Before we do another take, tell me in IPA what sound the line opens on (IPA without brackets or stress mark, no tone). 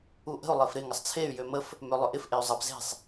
u